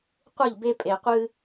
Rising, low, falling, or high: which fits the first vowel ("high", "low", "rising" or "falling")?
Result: falling